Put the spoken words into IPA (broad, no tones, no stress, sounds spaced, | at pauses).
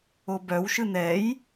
o b œ w ʃ ɯ n ɛ j